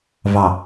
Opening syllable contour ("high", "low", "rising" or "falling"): low